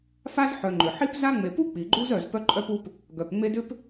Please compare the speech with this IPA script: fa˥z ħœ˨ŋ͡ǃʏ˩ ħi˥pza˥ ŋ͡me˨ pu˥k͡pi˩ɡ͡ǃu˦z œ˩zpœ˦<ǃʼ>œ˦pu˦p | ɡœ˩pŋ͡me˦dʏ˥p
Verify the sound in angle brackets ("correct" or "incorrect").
correct